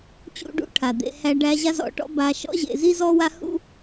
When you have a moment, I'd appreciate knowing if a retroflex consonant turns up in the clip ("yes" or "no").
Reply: yes